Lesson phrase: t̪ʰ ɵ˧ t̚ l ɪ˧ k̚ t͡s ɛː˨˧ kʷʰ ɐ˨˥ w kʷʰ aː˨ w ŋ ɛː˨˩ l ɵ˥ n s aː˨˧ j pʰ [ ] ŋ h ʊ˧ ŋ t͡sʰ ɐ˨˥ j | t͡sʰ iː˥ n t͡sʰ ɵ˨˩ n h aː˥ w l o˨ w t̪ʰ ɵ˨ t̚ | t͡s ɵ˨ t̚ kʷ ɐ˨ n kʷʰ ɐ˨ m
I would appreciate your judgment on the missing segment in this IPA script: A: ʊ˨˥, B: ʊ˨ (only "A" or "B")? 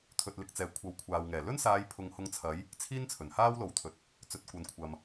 B